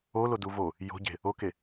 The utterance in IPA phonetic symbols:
olodu vo | jo̤ɟe̤ | oke

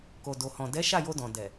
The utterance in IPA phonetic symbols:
ko˨do˨hɔ̃˨ dɛ˨˦ʃa˦˨jo˧ dɔ̃˨ dɛ˨

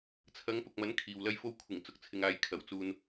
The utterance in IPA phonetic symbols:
t͡sʰɐ˨˧ŋpʊ˨k̚mɐ˨˥n kʰiː˨wlɐ˥jfo˥w kʷʰɪ˨˩ŋt͡sʊ˨k̚t͡sʰɪ˨ŋaː˨j kʰɐ˨˩wt͡suː˧n

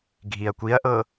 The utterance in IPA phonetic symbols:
ɡʱiɐ̯kʷiɐ̯ʔɤ

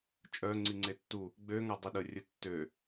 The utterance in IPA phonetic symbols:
t͡ʃʼœ ŋ͡ǀiŋ͡ǀetːu | ɡ͡bø ŋadˤiɗə rʲə tːø

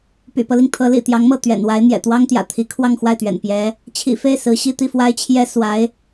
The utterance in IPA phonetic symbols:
py̰˨˩pɤ˦li˩ŋ t̪ʰɤ˧˥lḭ˨˩ t̪jɑ˧˥ŋmɤ˥˩ t̪ɥɛ̰˨˩nwa˧˥ɪ̯ n̪jɛ̰˨˩t̪wɑ˥ŋt̪jä̰˨˩ t̪ʰi˧˥ kʰwɑ˥˧ŋxwa˥˩ɪ̯t̪ɥɛ̰˨˩n pjɛ˧˥ | t͡ɕʰḭ˨˩fe˥˩ɪ̯ sɹ̩˧˥ ɕi˥˧t̪i˥˩ fwa˥ɪ̯t͡ɕʰjɛ˥ swa˧˥ɪ̯

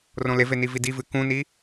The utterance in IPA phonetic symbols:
rõleve nividivɨ kũni

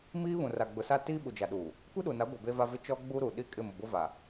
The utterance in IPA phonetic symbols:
miː˦ βũ˨ra˨ɡ͡bʊ˨sa˦ tiː˦ɓu˨d͡ʒa˨ɗuː˨ | kʷi˦ɗu˨na˨˦ɡʷe˨ be˦va˦vɪ˦ t͡ʃɔ˦ɡ͡bu˦ ɾu˨ɗi˦ kʼɪ˦˨mʊ˨bʊ˦ va˨

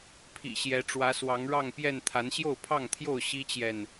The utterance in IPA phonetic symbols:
pʰḭ˨˩ɕjɛ˨˦ ʈ͡ʂwä˨˦swɑ˨˦ŋɻɑ˥˨ŋpjɛ˥˨n t̪ʰa˨˦nɕjo˥˨ʊ̯pʰɑ˥˨ŋt̪ʰjo˥˨ʊ̯ ɕi˦t͡ɕjɛ˨n

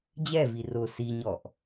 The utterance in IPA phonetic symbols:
d͡ʑɛvi rʊ siɲɔʔ

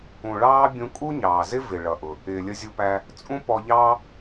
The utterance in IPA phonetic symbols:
ũ˩ɭɑː˥ bʲũ˧kʼu˥ɲɑː˩zɪ˥ vɪ˩ɭʌ˩ʔʊ˩ | ɪː˩lʲə˧zʲu˧pæ˧ | t͡sʼũ˥pɔ˧ʎɑː˥

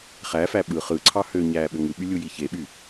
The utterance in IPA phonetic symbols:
χæfæ ɓɯ χɯǀʰɑ høɲæː ɓøŋɯɓy lʲujiçeɓy

